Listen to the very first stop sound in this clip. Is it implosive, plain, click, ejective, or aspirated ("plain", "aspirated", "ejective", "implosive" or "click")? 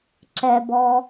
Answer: click